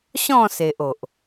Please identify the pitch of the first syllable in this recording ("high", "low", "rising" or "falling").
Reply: falling